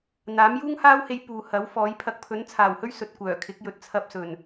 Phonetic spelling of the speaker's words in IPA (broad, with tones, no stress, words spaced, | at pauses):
n̪aː˨˥mjuː˥ŋhaː˥whe˧j puː˨hɐ˨˥w fɔː˨˥j pʰɐ˨k̚pʰɵ˨˥nt͡sʰaː˨˩whɵ˥ɥ sɵ˧t̚kʷœː˨˩ kʰɪ˨˥k̚ jɵ˨t̚t͡sʰɐ˧p̚sɵ˨˩n